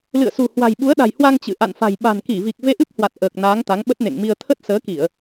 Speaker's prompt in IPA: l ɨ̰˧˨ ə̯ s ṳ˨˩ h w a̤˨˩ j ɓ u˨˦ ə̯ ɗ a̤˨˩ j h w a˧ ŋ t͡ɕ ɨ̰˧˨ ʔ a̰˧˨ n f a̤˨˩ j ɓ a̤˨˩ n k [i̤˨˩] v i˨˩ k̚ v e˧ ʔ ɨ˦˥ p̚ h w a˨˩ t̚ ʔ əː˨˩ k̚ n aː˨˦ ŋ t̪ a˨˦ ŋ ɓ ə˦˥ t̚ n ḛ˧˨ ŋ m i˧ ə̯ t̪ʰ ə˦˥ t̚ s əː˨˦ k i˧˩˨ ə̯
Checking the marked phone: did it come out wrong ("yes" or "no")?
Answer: yes